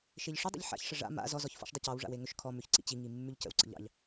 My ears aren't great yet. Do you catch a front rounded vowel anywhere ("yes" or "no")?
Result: yes